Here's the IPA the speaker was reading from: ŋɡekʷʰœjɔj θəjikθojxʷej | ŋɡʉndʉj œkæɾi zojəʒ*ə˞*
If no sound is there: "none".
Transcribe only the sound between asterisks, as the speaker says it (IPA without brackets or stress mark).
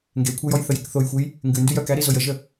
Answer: ə